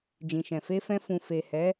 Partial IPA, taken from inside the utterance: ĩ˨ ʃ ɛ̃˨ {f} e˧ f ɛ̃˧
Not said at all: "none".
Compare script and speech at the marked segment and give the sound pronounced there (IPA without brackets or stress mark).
f